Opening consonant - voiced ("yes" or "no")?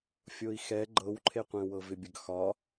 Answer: no